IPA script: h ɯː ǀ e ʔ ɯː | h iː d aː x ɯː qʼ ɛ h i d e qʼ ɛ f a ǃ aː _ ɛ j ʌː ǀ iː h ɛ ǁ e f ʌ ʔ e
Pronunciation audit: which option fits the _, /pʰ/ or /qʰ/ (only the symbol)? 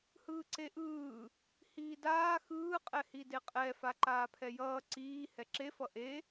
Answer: pʰ